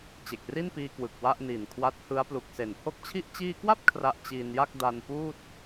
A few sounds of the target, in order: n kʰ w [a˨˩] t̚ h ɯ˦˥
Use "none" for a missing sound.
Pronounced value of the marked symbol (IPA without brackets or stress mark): a˦˥